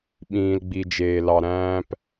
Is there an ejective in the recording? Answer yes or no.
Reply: no